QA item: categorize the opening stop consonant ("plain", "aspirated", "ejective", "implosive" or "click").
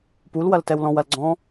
plain